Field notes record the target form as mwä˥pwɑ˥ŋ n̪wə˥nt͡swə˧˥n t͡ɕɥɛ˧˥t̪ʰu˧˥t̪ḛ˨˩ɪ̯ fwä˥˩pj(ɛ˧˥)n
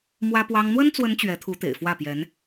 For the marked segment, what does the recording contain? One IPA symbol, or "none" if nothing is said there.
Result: ɛ˧˥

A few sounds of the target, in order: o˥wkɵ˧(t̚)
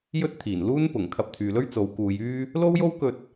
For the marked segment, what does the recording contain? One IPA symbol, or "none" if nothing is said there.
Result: t̚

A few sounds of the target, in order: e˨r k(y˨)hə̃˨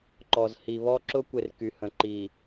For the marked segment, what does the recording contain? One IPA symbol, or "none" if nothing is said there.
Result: y˨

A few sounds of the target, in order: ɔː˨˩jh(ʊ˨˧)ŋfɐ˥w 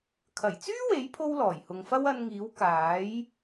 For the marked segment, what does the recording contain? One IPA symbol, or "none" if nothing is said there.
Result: ʊ˨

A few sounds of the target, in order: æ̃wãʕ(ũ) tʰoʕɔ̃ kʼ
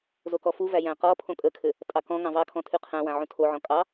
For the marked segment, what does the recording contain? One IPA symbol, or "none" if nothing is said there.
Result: ũ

